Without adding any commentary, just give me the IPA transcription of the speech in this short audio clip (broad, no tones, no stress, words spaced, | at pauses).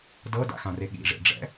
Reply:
dɤda̰xãre ɠḭʐḛɖ͡ʐɛ̰